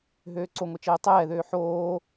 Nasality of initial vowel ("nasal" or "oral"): oral